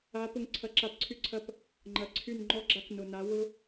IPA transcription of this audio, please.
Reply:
a˨˦ p ʊ˧ ŋ ǀʰ ɐ˧ ǁ a˧ p ǀʰ y˦ ǀʰ ɐ˦ p | ŋ͡ǃ ɐ˨ ǀʰ y˦˨ n ŋ͡ǃ ɔ˦ ɡ͡ǁ a˦ k n ʊ˨ n a˨˦ w ʊ˦

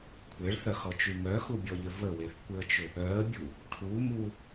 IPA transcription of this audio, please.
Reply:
kʷʰ e ɭ θ œ x ɔ t͡ʃ y m œ x u bʲ ɔ ʎ ʏ v ə w e θ kʷ ɪ ə̯ t͡ʃ ʏ | œ ə̯ bʲ u | ʈʰ u m u

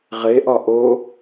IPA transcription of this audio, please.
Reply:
ʁ e ʔ ɒ ʔ o

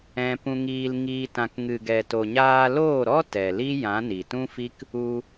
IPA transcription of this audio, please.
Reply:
ɛ̃˧ p ũ˧ ŋ iː˧ l ŋ iː˧ t ã˨ k ŋ ɨ˨ ɡ ɛ˨ t o˨ ɲ aː˧ l oː˦˨ ɾ ɔ˦ t ɛ˨ l i˦ j ã˨˦ n i˨ t ũ˦ f i˦ k | u˧

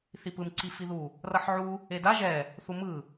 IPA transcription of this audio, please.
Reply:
θ i p ɯ m ǀ i f i ð u | r ʌ ħ ʕ u | e d a ʒ ɛ | θ u m ɯ

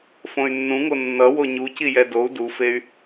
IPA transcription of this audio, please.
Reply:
f õ y̯ nː ũ ŋ o nː ʌ w o ɲ u c i j ɛ d o u̯ d u f e y̯

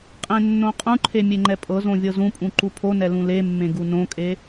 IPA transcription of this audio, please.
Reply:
qʼ ẽ nː õ qʼ ũ ǃʰ e mʲ e ŋ͡ǃ ɛ pʼ ɤ z õ vʲ ɤ z ũ pʼ ũ ǃ u pʰ o n ɛ l ũ l e mː ẽ ɡ u n õ kʼ e

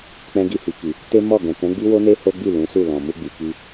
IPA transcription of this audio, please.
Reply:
k͡p ɛ̃˧ ɡ i˧ h i˨ k i˨ | t e˦ m ɔ˦˨ ɡ ɛ̃˨ k ɛ̃˨˦ ɡ͡b i˦ w o˦ n e˦ h o˦ ɡ͡b i˦˨ l ũ˨˦ s u˦˨ l ɔ̃˨ m u˧ ɡ͡b i˨ k i˧

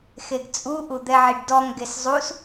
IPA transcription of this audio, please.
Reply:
x e ɡ t͡sʼ u ʔ u d̪ ɛ ʕ i ɖ d ɔ ŋ ɡ e s zˤ u s

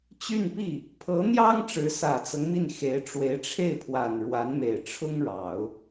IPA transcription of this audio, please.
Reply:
t͡ɕ y˥˧ n p i˥˩ | pʰ ɤ˧˥ n̪ j ɑ˥ ŋ ʈ͡ʂ ɻ̩˧˥ s ä˨˩ t͡s ɤ˦ ŋ m i˥˩ n x e˧˥ ɪ̯ ʈ͡ʂ w e˧˥ ɪ̯ ʈ͡ʂʰ e˥˩ ɪ̯ pʰ w a˨˩ n ɻ w a˧˥ n m e˨˩ ɪ̯ ʈ͡ʂʰ ʊ˥ ŋ ɻ ɑ˨˩˦ ʊ̯

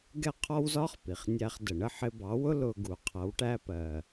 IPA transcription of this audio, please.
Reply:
ɡ ɛ˥˩ qʰ ɔ˥ w z ɒ˥ χ p i˩ χ nʲ æ˧ χ d ə˩ ɳ ə˥˩ ħ ɪ˧ b ɑ˩˥ w ʊ˥ l ʊ˧ ɡ u˩ qʰ ʌ˩˥ w ʈ æ˧ p ɜ˩

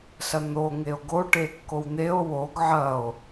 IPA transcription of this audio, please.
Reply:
s ɐ n̪ o ŋ e o̯ ɡ o ʈ e kː o w n̪ e o̯ w o ɡ ʕ ɐ o̯

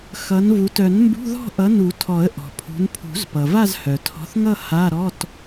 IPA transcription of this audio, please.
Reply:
x ʌ˨˦ n v u˨˦ t œ˨˩˦ n m b ṳ˧˥˧ ð ɔ̤˥˧ ʔ ʌ˨˦ n u˨˩˦ tʰ ɔ˨˩˦ ə̯ ʔ ɔ̤˩ pʰ ṳ˨˦ n pʰ ṳ˨˩˦ z p ʌ˩ v a˥˧ z h œ˩ tʰ ɔ̤˨˦ θ ŋ ʌ˥˧ h a˧˥˧ ɾ ɔ˧˥˧ t

